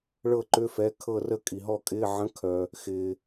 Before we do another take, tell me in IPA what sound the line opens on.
ɭ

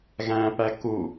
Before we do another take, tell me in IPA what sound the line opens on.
ɣ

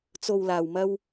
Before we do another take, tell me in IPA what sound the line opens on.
t͡s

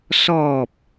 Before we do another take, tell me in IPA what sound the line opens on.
s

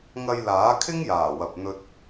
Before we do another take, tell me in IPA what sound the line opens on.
ŋ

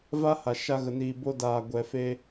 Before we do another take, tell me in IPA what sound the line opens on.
v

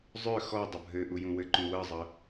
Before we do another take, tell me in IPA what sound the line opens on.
zˤ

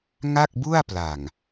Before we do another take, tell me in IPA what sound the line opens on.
ŋ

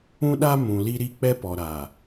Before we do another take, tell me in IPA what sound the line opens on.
ũ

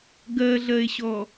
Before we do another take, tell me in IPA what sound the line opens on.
ɡ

